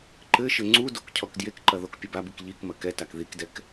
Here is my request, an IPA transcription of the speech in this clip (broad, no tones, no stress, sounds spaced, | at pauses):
ǃ ɘ ʃ ɘ ŋ͡ǀ u d o k cʰ ɔ k d j e k ǃ ɐ ð o k pʲ ɐ b a b ɨ k ʎ i k m ɐ k ɛ t a k ð i k d ɛ k